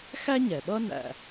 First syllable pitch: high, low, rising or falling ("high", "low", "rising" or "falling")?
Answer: high